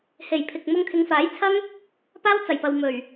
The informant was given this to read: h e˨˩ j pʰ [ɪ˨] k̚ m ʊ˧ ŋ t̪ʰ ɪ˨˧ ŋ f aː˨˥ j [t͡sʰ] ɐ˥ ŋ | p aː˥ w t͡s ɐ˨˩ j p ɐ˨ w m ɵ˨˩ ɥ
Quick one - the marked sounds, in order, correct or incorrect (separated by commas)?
correct, correct